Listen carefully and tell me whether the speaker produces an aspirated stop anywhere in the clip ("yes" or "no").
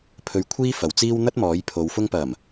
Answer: yes